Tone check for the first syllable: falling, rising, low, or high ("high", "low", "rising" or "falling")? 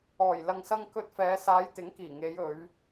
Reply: low